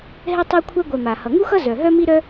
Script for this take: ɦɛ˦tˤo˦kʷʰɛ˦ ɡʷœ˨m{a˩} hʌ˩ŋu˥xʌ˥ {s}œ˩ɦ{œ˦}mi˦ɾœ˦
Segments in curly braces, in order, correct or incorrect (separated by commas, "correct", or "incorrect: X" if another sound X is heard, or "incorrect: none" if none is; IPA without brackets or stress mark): correct, incorrect: z, correct